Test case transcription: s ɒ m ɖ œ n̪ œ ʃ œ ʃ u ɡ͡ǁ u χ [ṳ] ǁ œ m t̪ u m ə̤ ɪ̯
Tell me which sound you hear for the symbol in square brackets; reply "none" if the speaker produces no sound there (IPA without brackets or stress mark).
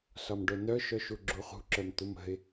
ṳ